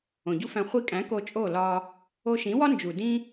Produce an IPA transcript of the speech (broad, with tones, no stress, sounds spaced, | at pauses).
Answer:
õ˨ ɟ u˦ f æ̃˧ χʷ i˧ kʼ æ̃˨˦ k o˧ t͡ʃʼ o˦˨ l ɒ˧ | o˧ ʃ ĩ˨˦ w ɒ˦ n d͡ʒ u˨ d ĩ˦